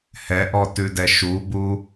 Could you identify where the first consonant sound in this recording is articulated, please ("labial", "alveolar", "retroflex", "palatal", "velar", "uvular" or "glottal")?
glottal